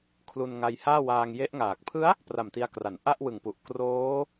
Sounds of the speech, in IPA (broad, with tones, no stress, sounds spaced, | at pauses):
kʰ l u˧ n ŋ a˧ j h aː˥˩ w aː˧ ŋ j e˦˥ ʔ ŋ aː˨˩ k̚ pʰ ɯ˦˥ a̯ | p r a˨˩ m t i˧ a̯ k r a˩˦ n ʔ a˥˩ ʔ w ɯ˨˩ ŋ p u˨˩ ʔ k r oː˦˥